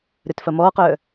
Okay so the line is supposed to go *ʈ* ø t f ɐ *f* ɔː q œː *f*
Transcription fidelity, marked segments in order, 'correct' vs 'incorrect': incorrect: ɾ, incorrect: m, incorrect: none

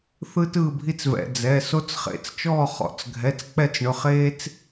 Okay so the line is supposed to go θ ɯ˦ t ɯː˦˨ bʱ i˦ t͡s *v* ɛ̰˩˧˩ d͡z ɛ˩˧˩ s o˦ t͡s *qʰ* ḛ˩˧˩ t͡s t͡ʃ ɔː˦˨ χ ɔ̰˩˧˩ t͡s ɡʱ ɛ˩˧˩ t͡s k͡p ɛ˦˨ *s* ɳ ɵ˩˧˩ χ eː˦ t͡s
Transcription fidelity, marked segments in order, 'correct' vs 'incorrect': correct, incorrect: χ, incorrect: t͡s

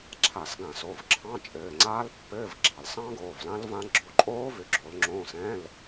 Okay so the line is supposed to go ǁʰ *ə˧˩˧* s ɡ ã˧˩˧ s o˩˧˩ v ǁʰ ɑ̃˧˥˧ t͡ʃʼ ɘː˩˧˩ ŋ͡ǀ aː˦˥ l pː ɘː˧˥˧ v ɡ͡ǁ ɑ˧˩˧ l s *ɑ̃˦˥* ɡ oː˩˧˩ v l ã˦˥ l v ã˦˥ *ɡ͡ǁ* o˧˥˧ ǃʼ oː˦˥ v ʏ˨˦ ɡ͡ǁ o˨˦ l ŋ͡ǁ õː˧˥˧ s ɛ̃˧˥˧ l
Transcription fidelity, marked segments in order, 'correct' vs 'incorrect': incorrect: a˧˩˧, correct, correct

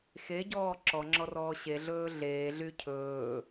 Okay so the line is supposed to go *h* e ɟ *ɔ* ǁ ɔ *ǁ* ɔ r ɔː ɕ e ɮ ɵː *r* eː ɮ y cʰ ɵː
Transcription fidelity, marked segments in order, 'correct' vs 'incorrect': incorrect: x, incorrect: ɔː, incorrect: ŋ͡ǁ, incorrect: ɮ

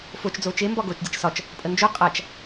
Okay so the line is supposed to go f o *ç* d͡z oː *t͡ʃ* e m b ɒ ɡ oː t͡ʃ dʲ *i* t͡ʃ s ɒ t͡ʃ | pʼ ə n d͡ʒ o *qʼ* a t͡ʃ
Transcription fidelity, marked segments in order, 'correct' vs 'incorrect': incorrect: t͡ʃ, correct, incorrect: e, correct

